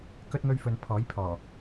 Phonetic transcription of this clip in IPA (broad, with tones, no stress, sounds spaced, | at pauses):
k ɵ˥ t̚ ŋ ɵ˥ ɥ f ɵ˧ n pʰ ɔː˨˥ j pʰ ɔː˨˩